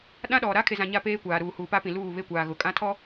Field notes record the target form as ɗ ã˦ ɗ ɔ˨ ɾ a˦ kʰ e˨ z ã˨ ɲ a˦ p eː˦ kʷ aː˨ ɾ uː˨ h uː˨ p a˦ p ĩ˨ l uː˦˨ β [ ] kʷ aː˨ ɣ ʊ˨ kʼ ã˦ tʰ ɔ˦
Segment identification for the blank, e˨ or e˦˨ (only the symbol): e˦˨